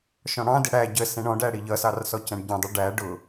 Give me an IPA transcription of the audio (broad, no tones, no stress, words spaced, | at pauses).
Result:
ʃɔ̃ɽɑ̃dɪ ɽæ ɟəsɛ̃ ɳɔ̃ɖæɽi ʎʌsɑr sɔcæ̃ɖɟɛ̃dˤu ɖæ ɖʊ